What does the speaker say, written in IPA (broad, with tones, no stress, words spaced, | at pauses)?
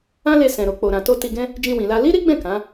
ã˦le˧ sɛ̃˨ɾo˨ k͡po˨ɾã˨to˧ ti˧ɡɛ̃˦ | d͡ʒĩ˧wĩ˨la˧ li˦ɾi˦ɡ͡bɛ̃˦˨ kã˨˦